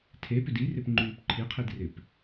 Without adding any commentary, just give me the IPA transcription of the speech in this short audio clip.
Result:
tʰ e p ʏ d i r ɪ p ŋ͡ǃ yː p ǃʰ i qʰ i d r ɪ p

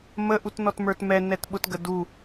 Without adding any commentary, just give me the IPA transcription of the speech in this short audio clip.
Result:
m ə ʔ u t n ɔ t m ə˞ t m ɛ n ɛ t ɓ ʊ t ɡ ə d u

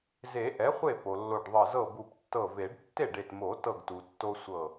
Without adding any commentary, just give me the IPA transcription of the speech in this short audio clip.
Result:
z e˨˩˦ ʔ ɛ˩˥ χʷ e˥˩ p o˩ lː o˧˩ ɖ ðˤ ɤ˧˩ z ɤ˥˩ b u˧˩ p tː ɤ˧˩ v e˨˩˦ ɖ tː e˥˩ ɖ e˧˩ t m o˨˩˦ t ɤ˧˩ ɡ t u˩ tː o˦ sʷ ɤ˧˩

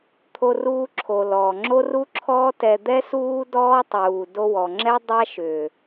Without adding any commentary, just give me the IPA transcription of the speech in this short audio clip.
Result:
t̪ʰ o˧ r uː˧ ǁʰ o˨ l ɔː˨ ŋ͡ǁ o˦ r u˦ ǁʰ ɔː˦ t ɛ˧ d̪ ɛ˦ s uː˦ d ɔː˦ tˤ uː˨ d o˧ w ɔ˨ ŋ͡ǁ ɛ˦ dˤ a˦ ʃ ʏː˨

